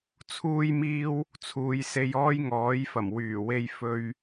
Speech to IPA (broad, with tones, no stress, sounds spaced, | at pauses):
t͡sʰ uː˥ j m iː˥ w | t͡sʰ uː˨˧ j s e˧ j ɔː˥ j ŋ ɔː˨˥ j f ɐ˨˩ m w yː˨˩ w e˧ j f ɵ˧ ɥ